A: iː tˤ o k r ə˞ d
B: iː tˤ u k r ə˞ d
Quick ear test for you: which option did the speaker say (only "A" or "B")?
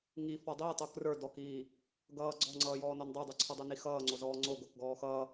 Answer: A